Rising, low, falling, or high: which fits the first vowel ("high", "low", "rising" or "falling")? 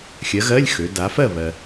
rising